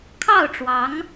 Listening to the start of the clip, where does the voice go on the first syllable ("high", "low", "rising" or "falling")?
falling